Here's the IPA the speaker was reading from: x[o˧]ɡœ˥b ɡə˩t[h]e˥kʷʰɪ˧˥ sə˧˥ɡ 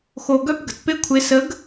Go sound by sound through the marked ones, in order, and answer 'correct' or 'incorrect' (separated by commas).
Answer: correct, incorrect